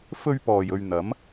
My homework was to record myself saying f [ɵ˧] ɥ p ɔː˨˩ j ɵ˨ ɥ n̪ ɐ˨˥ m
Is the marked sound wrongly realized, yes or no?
no